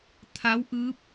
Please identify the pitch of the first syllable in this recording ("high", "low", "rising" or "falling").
rising